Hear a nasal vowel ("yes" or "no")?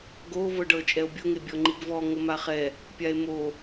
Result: no